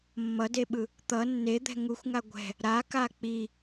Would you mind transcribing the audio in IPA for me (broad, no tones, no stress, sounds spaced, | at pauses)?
mː ʌ d e ɓ ɯ | t̪ ʌ nː e d̪ ɛ̤ ŋ u xʷ ŋ a ɡʷ ɛ̤ | ɾ a k a k͡p i